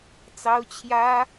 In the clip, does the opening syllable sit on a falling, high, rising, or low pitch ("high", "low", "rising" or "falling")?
high